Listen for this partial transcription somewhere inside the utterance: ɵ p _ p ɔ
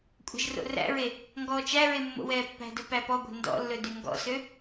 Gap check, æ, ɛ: æ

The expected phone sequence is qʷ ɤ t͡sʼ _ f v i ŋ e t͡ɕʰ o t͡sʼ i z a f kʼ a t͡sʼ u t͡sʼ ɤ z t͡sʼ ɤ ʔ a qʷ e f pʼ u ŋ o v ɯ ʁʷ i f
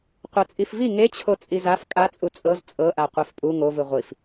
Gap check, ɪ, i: i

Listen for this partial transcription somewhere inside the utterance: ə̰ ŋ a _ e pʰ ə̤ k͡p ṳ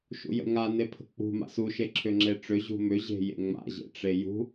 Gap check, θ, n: n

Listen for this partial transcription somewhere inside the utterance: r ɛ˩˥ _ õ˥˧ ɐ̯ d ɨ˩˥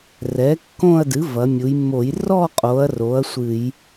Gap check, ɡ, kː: kː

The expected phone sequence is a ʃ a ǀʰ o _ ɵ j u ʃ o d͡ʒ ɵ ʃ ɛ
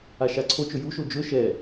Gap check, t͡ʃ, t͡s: t͡ʃ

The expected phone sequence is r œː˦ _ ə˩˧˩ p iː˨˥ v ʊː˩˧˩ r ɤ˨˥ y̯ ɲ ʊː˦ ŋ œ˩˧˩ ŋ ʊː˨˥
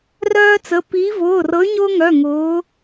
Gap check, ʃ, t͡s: t͡s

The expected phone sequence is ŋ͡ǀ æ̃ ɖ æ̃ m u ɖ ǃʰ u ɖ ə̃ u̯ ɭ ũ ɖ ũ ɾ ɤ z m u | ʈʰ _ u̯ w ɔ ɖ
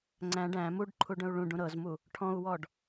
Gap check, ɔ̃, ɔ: ɔ̃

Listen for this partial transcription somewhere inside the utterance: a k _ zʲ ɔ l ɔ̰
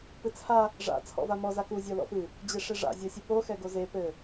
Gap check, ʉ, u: u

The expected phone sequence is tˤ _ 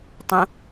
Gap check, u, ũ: ũ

